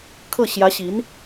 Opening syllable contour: falling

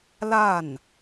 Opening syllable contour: falling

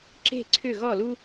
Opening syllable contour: falling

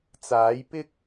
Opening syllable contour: rising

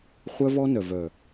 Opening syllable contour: high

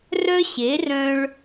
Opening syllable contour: high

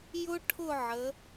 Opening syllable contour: high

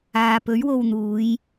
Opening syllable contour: low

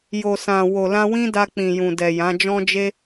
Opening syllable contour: low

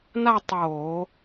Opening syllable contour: falling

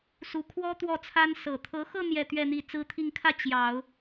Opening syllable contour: rising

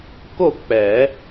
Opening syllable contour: falling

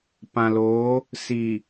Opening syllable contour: low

